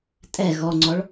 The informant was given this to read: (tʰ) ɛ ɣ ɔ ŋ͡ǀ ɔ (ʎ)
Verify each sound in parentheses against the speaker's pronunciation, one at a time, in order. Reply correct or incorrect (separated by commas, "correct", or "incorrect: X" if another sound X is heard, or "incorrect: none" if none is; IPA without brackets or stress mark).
incorrect: tʼ, incorrect: ɭ